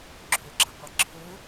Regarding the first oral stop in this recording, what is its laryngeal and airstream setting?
click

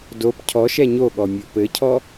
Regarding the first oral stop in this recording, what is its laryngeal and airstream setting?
plain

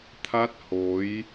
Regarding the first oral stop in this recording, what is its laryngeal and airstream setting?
aspirated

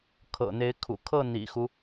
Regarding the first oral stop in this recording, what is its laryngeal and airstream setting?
aspirated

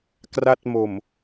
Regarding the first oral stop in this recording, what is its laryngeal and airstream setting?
plain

